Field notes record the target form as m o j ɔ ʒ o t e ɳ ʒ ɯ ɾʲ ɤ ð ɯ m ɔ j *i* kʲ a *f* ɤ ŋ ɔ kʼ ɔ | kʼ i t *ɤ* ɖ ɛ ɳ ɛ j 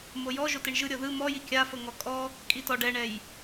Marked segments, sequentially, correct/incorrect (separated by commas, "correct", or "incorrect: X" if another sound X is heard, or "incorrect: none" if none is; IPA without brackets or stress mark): correct, correct, incorrect: ɔ